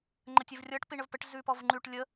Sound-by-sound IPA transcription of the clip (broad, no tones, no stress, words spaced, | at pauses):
ŋ͡ǃətʲɘvrʲʌʈ piɳəvpəʈ zʉpɔvŋ͡ǃʉʈ lʲə